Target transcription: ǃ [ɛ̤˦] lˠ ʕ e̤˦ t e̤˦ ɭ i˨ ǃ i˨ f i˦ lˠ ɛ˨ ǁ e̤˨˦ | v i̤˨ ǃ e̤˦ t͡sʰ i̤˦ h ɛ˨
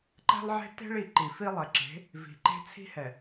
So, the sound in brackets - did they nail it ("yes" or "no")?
yes